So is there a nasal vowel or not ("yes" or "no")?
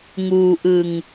no